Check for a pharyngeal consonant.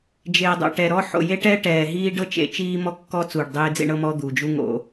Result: present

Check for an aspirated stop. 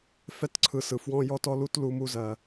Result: present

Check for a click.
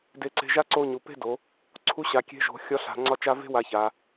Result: present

